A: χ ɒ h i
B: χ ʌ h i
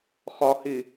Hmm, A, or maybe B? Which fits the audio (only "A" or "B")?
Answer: A